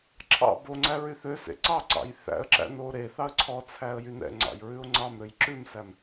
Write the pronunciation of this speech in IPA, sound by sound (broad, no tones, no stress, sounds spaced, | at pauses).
ǁʰ ɑ̰ b o ŋ͡ǀ æ ɹ y θ ø s ḛ ǀ ɑ ǀ ɑ̰ j θ æ̰ ə̯ ǁ æ̰ n o ɾ e θ ɑ ə̯ ǀʰ ɔ t͡sʰ æ ə̯ j y n ɛ̰ ŋ͡ǀ ɑ̰ j ɹ ʉ ʊ̯ ŋ͡ǀ ɑ m ɾ ø j ǁ ʉ m s æ m